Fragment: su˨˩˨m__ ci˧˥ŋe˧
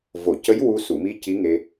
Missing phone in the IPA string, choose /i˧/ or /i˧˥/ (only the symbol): i˧